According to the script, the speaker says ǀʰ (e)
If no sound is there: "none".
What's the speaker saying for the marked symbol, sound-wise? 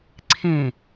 ẽ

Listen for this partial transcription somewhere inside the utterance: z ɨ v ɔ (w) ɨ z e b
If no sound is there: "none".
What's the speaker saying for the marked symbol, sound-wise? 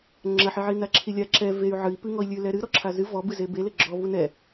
b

